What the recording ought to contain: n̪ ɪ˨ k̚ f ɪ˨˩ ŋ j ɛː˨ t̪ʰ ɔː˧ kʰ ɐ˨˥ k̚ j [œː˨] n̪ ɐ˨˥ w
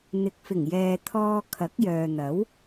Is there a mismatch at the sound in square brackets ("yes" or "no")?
no